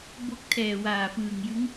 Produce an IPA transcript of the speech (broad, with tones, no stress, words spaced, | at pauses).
bo˦˥k̚ tʰɛː˨˩waː˨˩fɯː˨˩ŋjɯ˦˥ŋ